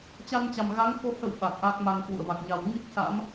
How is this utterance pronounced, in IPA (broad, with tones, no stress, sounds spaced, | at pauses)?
t͡ɕ a˧ n t͡ɕ a˨˩ m ɣ a˨˦ ŋ f o˧ h ə̰˧˨ w ɓ a˨˩ k̚ ʔ a˦˥ k̚ m a˧ ŋ k w ṵ˧˨ ə̯ v a˨˩ k̚ ɲ a˨˩ w ŋ i˦˥ k̚ s a̰˧˥ m